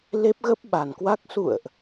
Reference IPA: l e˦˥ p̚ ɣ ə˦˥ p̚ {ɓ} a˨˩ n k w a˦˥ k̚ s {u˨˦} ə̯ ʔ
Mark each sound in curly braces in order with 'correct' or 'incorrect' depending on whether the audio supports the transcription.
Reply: correct, incorrect: ṵ˧˨

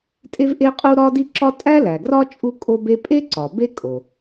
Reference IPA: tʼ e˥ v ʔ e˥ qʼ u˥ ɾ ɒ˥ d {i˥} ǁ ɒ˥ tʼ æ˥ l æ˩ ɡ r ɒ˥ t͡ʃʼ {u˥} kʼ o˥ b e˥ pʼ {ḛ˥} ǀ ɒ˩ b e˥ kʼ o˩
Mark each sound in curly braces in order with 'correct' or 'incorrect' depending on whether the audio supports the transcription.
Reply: correct, correct, incorrect: e˥

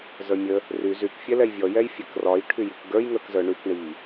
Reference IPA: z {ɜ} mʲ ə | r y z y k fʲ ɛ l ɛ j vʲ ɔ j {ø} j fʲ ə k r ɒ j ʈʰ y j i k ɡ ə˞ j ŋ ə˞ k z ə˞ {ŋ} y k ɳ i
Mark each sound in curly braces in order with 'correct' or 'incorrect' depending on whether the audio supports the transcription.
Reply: incorrect: ə˞, incorrect: ɛ, incorrect: ɳ

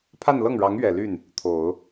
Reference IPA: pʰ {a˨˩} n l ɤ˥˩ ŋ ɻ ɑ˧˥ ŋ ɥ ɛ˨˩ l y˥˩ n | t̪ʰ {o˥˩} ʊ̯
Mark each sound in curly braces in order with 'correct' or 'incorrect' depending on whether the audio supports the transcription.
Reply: incorrect: a˥˧, incorrect: o˨˩˦

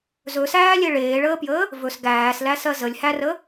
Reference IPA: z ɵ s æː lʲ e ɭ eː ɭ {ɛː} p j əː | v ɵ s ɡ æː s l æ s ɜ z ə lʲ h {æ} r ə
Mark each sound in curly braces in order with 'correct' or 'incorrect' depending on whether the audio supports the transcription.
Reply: incorrect: əː, correct

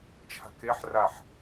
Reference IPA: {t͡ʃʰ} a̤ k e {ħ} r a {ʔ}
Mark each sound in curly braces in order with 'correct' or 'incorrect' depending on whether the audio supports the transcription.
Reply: correct, correct, incorrect: ħ

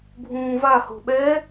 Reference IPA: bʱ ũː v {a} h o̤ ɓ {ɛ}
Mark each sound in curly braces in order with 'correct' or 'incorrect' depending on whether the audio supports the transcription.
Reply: correct, correct

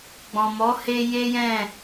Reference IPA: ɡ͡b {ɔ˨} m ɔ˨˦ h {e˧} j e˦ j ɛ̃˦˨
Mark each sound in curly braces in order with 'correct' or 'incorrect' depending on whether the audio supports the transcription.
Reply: incorrect: ɔ̃˨, correct

